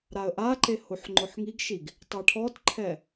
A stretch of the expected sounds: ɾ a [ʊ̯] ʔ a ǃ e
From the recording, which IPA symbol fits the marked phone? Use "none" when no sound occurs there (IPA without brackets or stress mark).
ə̯